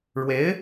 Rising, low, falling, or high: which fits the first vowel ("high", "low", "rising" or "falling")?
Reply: rising